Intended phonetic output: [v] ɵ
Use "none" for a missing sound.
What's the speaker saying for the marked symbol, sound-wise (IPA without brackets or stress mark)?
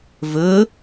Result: v